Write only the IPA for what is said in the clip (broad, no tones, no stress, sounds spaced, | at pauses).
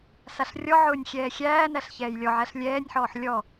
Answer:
s a ɬ rʲ ɔ ʕ ʊː nʲ xʲ ɛː xʲ æː n æ ɬ ç ɛː j lʲ ɔ ʕ æ ɬ lʲ ɛː nʲ ħ ɔː ħ lʲ ɔ